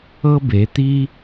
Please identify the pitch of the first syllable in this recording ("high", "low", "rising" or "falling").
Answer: high